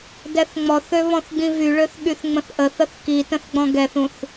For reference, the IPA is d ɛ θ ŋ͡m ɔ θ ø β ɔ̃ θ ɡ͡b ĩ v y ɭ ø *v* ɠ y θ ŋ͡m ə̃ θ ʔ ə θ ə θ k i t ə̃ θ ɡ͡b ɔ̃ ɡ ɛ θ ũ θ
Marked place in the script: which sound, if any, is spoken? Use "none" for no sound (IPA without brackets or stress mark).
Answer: θ